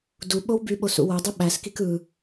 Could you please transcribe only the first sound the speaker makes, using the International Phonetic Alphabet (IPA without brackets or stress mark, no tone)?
d